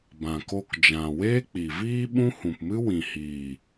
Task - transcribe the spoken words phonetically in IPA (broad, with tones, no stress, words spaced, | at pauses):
bã˨ko˧kd͡ʒã˨ weː˦k͡pi˨viː˦ ɓũ˦hũ˨pmɨ˦ wĩ˨hiː˨